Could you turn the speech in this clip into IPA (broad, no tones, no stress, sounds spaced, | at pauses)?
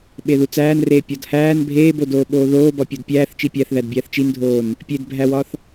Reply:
ɓ e ð u t͡s æː n r eː pʲ ɒ d h æː n bʱ eː b o d oː ɓ oː ð oː b ɒ pʲ o d pʲ æː θ t͡ʃ i pʲ æ θ ð æ d bʲ æː θ t͡ʃ i n dʱ oː n | pʲ e d bʱ æ w ɒ θ